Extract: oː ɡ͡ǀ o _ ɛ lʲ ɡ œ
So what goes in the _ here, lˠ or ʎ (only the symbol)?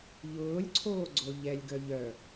ʎ